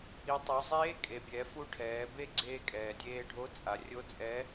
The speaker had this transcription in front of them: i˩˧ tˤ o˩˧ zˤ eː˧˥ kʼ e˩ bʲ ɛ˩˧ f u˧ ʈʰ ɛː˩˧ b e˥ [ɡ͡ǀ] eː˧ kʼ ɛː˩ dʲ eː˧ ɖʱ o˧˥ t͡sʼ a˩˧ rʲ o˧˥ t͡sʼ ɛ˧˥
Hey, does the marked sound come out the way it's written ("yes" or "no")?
yes